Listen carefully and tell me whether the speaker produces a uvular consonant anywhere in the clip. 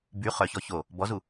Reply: yes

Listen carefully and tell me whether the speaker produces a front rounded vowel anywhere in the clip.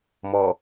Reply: no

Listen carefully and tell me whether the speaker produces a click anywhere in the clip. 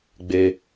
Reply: no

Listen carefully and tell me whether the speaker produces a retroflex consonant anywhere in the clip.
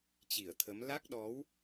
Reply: no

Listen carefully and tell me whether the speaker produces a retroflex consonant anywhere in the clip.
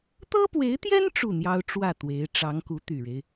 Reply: yes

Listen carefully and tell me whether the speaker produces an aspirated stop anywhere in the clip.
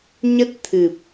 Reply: yes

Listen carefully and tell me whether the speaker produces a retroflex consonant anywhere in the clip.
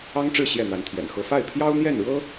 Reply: yes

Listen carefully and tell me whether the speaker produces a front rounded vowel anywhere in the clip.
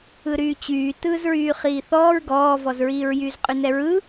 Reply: yes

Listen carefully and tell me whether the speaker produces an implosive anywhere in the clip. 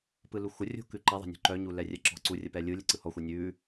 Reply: no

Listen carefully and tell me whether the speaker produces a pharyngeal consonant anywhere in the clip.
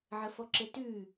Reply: yes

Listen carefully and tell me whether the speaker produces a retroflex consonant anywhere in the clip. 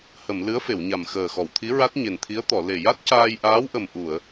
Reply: no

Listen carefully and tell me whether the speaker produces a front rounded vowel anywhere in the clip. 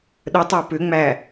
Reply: yes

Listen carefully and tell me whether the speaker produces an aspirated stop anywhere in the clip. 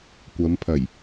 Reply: yes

